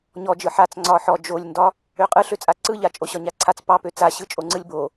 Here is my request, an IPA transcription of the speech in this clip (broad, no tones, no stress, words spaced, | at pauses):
ɲɔd͡ʒɯ ħat͡s ŋ͡ǀɒħɔ d͡ʒolʲndɒ | øqʼɯ ɬøt͡sʼaǀɯʎa t͡ʃʼoɕɒɲaǀʰat͡s pɑpø t͡saɕɯ t͡ʃʼoŋ͡ǀɯlʲbo